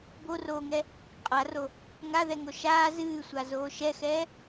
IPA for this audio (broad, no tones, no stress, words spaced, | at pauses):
boroːŋɛ | qʼaro | ŋaðɛŋo ʃaː zɨːsʷazoː ʃɛxɛː